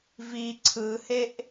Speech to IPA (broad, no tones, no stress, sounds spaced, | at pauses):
v i ǀʰ ɯ h e ʔ